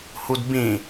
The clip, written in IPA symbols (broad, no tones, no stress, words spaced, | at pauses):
hudbĩ